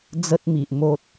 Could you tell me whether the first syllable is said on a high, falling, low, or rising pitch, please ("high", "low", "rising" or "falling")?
high